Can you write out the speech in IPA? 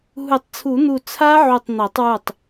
ɦ u˨˩˦ tˤ t͡sʰ u˨˩˦ n̪ u˧˩ t͡sʰ a˦˥ ʕ u˧˩ tˤ n̪ æ˨˩˦ tˤ w u˧˩ tˤ

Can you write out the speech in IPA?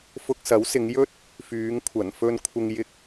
f ʊ˧ k̚ s ɐ˨˥ w s ɪ˨˧ ŋ j ɵ˥ t̚ | f yː˨˧ ŋ kʷʰ ɐ˨˩ n f ɵ˧ n kʷʰ ɪ˧ ŋ j ɪ˧ k̚

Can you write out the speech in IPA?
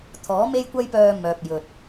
t̪ʰ ɔː˨˥ m e˥ j kʷ ɐ˥ j p œː˧ m œː˨ p̚ j ɵ˨ t̚

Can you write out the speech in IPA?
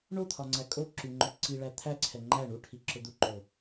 ɳ o t̪ʰ ɒ ŋ͡ǀ æ kʼ o ǁ y ŋ͡ǃ ʊ ǀ i ɭ æ t̪ʰ æ ǀʰ ɛ ŋ͡ǃ æ ɳ u ʈʰ i ǁ ʊ d̪ u ǃ o

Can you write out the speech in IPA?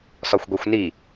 s ɒ xʷ ɡʷ e xʷ n i

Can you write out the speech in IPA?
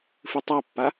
f ɨ tˤ a pː a

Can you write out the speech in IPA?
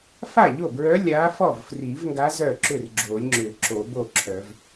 f a˥˩ ʎ o˥˩ b ɹ œ˧˥ lʲ a˧˥ f ɔ˥˩ v f r i˨˩˦ v ŋ ɡ a˧˥ z œ˥˩ ǁ ʏ˥˩ r ɡ͡ǁ o˨˩˦ lʲ ŋ͡ǁ ʏ˨˩˦ ǁ o˨˩˦ b o˥˩ ǁʰ œ˨˩˦ v

